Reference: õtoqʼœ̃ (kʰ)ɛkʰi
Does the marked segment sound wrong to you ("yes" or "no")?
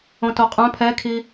yes